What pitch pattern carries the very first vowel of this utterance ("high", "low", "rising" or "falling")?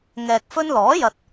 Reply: low